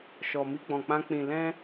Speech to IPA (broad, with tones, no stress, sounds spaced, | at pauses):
ʃ ɔ˨ m i˧ ɡ͡b ɔ̃˨ k͡p ã˧ k͡p ĩ˨ l ɛ̃˧